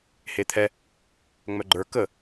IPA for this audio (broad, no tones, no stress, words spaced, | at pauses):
het̪ʰɛ | ŋ͡mœɡ͡ǃə˞ kə